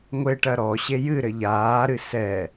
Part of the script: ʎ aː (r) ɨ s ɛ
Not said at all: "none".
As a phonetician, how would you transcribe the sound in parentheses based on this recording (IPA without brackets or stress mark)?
ɾ